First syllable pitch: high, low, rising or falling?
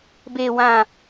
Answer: low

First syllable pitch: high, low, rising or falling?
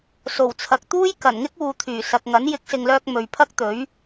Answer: low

